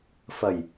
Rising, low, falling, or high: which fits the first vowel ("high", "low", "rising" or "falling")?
low